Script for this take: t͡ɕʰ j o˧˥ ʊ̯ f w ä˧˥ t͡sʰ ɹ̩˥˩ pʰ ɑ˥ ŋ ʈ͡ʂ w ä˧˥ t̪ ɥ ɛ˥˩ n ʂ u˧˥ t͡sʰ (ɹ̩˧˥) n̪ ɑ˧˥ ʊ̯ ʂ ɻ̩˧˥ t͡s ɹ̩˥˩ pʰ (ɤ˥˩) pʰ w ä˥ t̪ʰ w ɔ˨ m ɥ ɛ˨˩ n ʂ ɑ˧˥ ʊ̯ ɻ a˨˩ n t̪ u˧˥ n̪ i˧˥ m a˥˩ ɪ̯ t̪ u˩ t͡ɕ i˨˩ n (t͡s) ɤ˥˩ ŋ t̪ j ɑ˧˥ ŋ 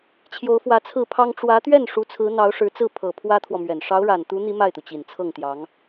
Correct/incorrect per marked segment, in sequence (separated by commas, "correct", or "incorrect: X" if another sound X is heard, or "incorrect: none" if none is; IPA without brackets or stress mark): correct, incorrect: ɤ˨˩, incorrect: t͡sʰ